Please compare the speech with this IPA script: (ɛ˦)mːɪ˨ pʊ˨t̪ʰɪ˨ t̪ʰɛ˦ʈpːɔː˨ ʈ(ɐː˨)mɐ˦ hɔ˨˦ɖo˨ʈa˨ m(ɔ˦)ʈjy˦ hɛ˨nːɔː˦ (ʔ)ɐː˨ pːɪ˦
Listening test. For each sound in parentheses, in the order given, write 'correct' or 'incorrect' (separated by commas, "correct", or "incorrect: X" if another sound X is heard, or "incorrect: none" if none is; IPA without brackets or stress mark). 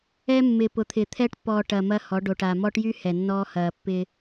correct, correct, correct, incorrect: h